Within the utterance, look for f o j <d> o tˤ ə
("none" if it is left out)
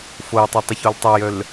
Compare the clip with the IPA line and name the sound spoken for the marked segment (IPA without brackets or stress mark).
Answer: tˤ